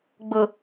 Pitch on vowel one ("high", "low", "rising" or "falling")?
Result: low